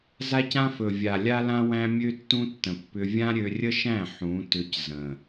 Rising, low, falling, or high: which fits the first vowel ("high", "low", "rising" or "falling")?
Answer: high